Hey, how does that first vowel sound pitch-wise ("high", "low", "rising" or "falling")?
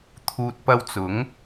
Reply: low